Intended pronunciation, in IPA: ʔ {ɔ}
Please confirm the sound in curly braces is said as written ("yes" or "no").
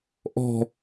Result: no